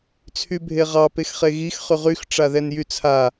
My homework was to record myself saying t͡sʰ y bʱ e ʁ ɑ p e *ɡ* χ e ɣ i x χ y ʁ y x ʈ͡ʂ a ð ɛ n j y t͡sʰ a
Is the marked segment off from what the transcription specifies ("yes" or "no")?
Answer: yes